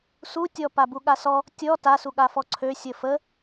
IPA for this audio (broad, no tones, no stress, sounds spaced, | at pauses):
s u tʲ ɔ p a b u ɠ a s ɔ | tʲ ɔ t a s u ɠ a f ɔ ǀʰ ø sʲ ə f ə